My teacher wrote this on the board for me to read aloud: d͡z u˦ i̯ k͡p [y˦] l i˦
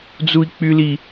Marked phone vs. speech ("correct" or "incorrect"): correct